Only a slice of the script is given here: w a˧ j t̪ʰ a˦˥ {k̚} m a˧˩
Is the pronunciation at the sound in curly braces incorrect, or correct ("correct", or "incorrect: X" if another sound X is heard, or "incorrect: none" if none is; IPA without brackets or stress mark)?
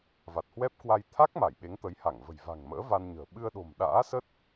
correct